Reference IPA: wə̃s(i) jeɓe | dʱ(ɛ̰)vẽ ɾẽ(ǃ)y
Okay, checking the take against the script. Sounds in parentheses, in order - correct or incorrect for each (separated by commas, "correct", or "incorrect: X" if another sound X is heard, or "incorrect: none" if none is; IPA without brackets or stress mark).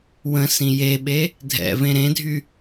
incorrect: ĩ, correct, incorrect: dʱ